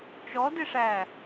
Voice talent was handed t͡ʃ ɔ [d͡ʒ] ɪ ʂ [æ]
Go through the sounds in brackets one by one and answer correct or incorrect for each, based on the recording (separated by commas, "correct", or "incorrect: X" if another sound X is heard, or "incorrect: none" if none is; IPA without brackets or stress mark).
incorrect: d, correct